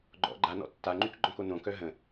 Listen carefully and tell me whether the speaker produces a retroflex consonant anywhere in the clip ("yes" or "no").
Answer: no